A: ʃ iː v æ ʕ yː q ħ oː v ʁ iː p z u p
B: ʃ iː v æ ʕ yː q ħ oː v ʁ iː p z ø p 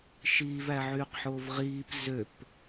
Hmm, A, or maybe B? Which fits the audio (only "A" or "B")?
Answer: B